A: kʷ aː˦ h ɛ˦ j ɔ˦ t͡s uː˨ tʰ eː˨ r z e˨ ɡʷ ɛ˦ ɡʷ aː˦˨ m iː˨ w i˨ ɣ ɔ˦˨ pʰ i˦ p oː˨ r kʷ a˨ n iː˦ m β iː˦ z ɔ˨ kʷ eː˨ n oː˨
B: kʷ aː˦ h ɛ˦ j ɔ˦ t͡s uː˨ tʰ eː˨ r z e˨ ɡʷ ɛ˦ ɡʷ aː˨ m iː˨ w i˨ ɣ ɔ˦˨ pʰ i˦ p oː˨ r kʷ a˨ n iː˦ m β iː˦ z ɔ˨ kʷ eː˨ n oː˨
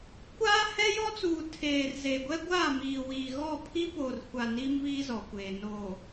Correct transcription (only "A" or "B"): A